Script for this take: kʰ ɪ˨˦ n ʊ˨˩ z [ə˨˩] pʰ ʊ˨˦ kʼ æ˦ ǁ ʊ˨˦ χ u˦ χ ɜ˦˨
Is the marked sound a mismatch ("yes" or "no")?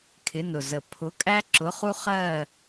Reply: no